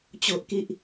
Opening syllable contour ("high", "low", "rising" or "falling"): high